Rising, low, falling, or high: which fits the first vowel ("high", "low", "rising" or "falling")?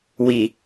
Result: low